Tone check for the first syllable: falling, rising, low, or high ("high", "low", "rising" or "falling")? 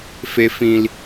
low